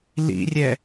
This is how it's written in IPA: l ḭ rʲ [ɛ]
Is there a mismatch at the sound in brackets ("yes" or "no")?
no